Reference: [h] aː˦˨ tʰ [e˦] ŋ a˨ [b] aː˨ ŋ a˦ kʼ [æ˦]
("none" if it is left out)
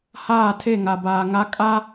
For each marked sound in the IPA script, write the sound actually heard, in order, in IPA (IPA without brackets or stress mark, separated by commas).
h, e˦˨, b, a˦